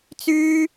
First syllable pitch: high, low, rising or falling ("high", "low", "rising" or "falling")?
high